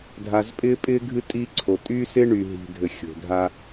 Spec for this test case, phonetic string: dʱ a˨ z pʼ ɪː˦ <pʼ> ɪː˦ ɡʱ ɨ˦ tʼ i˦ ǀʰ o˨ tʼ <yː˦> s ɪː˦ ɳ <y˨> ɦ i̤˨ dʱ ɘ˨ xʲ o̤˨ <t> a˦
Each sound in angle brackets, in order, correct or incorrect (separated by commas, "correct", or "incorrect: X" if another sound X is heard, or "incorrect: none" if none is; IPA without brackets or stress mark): correct, correct, correct, incorrect: dʱ